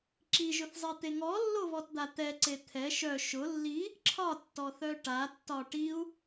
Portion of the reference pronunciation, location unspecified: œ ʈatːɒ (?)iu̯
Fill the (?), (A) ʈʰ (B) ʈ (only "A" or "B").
B